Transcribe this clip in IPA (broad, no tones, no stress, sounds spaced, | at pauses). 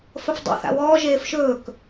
f ə f dˤ ḭ θ a̰ w ɔː ʒ eː f ʃ ɵː k